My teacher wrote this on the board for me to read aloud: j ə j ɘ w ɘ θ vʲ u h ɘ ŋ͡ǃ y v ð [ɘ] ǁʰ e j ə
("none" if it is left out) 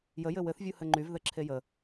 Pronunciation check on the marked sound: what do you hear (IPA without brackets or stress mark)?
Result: ɘ